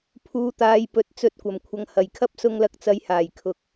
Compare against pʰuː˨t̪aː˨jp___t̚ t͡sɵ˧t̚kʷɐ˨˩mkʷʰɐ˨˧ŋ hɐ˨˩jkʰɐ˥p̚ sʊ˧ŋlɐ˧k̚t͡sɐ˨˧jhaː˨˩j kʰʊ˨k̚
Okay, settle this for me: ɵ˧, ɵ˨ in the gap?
ɵ˨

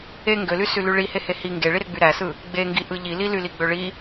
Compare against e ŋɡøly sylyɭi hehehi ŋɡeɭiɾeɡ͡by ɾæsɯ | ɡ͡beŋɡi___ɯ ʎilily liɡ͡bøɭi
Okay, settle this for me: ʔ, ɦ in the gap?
ʔ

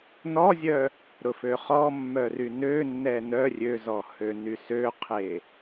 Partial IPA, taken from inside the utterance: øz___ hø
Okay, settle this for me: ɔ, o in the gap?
ɔ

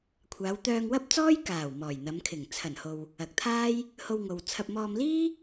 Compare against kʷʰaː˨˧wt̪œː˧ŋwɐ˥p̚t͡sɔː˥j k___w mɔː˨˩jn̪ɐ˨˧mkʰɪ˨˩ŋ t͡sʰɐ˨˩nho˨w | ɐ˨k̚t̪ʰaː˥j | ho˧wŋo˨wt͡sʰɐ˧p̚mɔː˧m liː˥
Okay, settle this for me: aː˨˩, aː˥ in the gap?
aː˨˩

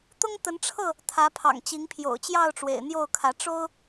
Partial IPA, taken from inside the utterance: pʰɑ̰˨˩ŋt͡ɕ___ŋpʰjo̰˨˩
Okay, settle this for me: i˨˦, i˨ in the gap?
i˨˦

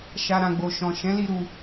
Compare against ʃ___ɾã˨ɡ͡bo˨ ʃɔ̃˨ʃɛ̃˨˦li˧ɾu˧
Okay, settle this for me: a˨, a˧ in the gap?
a˨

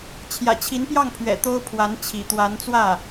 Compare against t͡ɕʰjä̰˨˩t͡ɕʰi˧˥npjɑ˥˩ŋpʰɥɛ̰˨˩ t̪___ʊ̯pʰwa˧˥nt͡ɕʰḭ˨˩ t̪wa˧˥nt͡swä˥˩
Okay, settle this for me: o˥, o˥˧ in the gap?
o˥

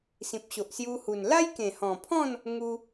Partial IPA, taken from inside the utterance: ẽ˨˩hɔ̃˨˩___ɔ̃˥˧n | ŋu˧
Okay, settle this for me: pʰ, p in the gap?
pʰ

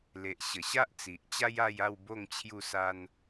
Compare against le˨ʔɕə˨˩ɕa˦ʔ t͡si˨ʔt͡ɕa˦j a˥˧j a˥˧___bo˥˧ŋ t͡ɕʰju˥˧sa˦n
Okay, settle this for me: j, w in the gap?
w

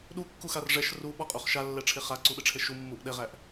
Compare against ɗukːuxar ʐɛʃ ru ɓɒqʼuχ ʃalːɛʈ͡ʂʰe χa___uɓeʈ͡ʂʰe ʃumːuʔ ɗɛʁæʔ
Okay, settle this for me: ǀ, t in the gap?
ǀ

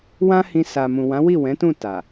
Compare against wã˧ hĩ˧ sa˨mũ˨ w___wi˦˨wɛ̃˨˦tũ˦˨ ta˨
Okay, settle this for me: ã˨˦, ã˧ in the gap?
ã˨˦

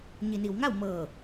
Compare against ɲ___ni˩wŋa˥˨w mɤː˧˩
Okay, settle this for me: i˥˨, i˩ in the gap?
i˩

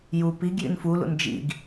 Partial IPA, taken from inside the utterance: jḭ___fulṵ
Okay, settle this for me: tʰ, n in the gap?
n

